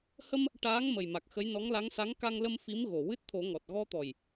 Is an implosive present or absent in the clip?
absent